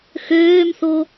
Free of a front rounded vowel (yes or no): no